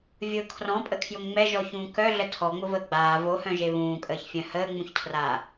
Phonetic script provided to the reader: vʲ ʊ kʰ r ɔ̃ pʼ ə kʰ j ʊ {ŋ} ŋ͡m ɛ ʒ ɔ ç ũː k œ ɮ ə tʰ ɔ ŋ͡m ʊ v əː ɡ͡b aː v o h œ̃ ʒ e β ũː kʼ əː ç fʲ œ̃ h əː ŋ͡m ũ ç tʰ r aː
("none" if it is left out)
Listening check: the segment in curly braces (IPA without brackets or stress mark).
ŋ